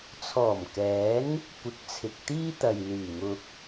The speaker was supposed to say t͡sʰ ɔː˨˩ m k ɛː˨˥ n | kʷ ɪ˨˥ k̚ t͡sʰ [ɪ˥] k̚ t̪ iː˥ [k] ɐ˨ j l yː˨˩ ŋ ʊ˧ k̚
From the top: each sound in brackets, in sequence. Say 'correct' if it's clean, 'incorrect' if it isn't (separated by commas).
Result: incorrect, incorrect